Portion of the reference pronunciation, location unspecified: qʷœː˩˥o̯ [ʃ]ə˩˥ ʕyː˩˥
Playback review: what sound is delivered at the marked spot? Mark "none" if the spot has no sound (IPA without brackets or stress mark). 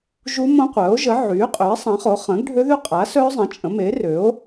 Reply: ʒ